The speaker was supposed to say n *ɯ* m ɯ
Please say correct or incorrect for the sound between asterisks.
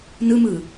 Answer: correct